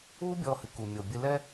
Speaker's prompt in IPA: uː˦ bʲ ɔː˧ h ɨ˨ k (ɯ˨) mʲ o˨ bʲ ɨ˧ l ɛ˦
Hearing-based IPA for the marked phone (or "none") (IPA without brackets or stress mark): u˨